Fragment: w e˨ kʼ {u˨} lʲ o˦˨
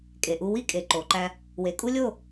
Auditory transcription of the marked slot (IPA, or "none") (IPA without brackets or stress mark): u˦